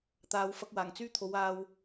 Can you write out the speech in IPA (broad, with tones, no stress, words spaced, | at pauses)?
t̪aː˧wfɐ˥k̚waː˨˩ŋ t͡syː˥t̪ʰo˨˧w aː˧w